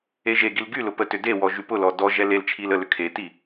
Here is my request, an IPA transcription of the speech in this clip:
e ʒ e ɡ i l ɡ y l ʊ p ə t ʏ d e w ɔ ʒ y p ʊ l ɔ d ɔ ʒ ɛ l e l t͡ʃʰ i l ə l ʏ kʰ e t i

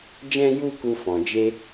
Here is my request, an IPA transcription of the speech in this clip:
d͡ʒ ɛ̃˧ j u˧ k u˧ f ɔ̃˨ d͡ʒ e˦

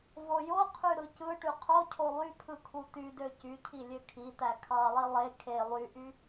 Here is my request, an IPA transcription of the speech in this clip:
v o j o qʰ y ɾ ɯ c ɯ ʈ y qʰ o cʰ o lˠ y pʰ ɯ kʰ u t̪ y d ø c y cʰ i lʲ ø kʰ i t̪ æ kʰ ɑ lˠ i lˠ e kʰ e lˠ y ʔ y

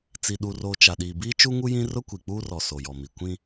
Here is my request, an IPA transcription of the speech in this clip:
t͡s i˨ ɗ u˨ r oː˨ t͡ʃ a˨ ɗ iː˨ b iː˦ t͡ʃ u˦ ŋ u˦ j ĩ˦ r ʊ˦ kʷ i˨ k͡p uː˦ r ɔ˨ s o˨ j ɔ˨ m i˨ kʷ ĩ˦

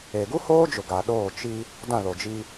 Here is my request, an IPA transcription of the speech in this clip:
e˨ ɡ u˦ h oː˦ d͡ʒ ʊ˨ ɡ a˨ ɗ oː˦˨ t͡ʃ i˦ | d ã˦˨ l o˨ d͡ʒ i˦

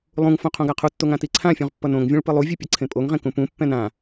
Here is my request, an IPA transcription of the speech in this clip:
lˠ ũ ŋ f õ qʰ õ ɡ a qʰ u tː o ŋ ã t i ǀʰ ã fʲ ũ ʁ pː ʌ n õ ŋ vʲ ũ ɭ p ɯ lˠ u vʲ ɯ pʲ ʌ ǀʰ ẽ pʼ o ŋ ʁ ẽ k ũ p ũ pː ɛ̃ n ã

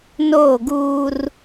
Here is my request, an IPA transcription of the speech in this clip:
n oː˦˨ ɡ uː˦ r

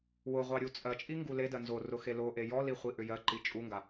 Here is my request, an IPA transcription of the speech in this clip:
w ʊ ʁʷ ɑ ɾʲ u t͡sʼ ɜ t͡ʃʼ i ŋ ɡ u l e d ɜ n z o r ʊ x e l o ʔ e j ɔ l i χʷ i ʔ ʏ j ɜ ǃ i t͡ʃʼ u ŋ ɡ a

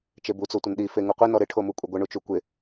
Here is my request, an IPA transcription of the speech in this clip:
t͡ʃ e b u t͡s o tʷ ə n ɗ i f e ŋ u qʷ i n ɔ ɾ ɪ ʈʰ o m u kʷʼ ə ɡʷ ə ɳ u t͡ʃ u kʷ ɪ

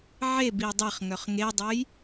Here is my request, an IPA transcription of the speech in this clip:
ʕ e b i dˤ ɛ χ ŋ œ χ ŋ e dˤ o j

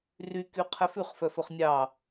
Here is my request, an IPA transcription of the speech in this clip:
r y k y qʰ ɛ f ʉ χ f œ f ɵ χ nʲ ɑ

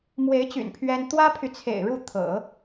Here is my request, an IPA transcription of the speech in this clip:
m w e˧˥ ɪ̯ t͡ɕ y̰˨˩ n pʰ ɥ ɛ˥ n t̪ w ä˥ pʰ y˨ t͡sʰ ḛ˨˩ ɪ̯ ɻ u˥˩ t̪ʰ ɤ̰˨˩˦

